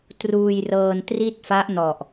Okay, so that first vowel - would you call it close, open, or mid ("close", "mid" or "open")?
close